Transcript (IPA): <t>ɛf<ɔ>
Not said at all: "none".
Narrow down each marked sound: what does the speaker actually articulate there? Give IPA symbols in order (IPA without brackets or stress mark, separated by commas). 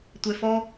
tʷ, ɔ